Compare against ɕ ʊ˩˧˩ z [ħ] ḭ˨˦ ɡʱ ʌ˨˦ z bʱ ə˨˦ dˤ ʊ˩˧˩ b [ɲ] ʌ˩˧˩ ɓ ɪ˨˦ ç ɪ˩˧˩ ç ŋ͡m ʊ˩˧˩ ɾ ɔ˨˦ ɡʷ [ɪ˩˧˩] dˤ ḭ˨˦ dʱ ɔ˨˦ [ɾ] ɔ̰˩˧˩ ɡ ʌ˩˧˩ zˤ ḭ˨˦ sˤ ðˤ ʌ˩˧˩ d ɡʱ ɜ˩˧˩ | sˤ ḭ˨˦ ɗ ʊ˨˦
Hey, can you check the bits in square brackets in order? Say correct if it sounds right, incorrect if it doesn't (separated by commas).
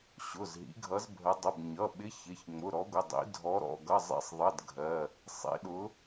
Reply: incorrect, correct, correct, correct